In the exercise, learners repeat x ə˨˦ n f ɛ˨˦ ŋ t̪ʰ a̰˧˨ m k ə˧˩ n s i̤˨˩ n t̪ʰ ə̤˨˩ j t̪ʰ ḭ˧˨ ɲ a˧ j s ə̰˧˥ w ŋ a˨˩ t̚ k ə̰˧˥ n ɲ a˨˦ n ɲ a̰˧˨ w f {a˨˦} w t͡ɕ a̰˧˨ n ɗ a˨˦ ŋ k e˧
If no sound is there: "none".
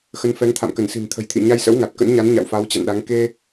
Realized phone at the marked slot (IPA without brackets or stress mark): a˨˦